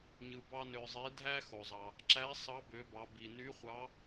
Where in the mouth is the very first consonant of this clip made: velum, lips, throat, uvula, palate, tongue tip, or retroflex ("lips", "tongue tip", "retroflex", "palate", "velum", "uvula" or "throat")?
palate